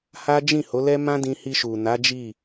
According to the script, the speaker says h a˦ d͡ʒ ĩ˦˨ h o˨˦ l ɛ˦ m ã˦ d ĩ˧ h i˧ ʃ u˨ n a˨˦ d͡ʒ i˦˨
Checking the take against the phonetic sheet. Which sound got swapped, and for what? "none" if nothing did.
none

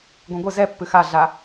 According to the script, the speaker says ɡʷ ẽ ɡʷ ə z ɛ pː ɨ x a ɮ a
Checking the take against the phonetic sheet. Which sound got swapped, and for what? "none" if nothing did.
none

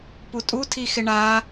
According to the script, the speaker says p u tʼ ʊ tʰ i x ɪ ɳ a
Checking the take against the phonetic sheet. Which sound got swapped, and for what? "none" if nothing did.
ʊ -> u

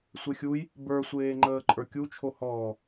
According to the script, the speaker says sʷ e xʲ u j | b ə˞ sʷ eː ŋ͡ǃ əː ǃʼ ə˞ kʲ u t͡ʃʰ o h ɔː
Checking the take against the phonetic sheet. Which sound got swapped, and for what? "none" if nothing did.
none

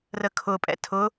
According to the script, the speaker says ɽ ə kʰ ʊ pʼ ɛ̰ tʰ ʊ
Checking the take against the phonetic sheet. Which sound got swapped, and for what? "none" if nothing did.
ɽ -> r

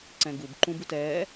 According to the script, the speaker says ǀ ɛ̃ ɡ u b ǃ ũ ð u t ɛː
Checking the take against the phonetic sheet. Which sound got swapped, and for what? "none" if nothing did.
ð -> b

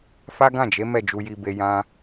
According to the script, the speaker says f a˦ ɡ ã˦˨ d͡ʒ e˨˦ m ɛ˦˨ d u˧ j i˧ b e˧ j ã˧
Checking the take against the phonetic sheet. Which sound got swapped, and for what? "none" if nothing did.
d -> d͡ʒ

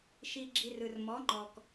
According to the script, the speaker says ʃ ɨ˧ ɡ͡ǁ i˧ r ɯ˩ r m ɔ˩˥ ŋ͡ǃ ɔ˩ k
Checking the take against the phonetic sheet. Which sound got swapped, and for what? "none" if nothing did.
ɨ˧ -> i˧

